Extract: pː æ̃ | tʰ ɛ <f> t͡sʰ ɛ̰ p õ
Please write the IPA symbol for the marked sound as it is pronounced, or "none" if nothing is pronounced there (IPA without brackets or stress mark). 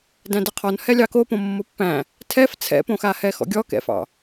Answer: f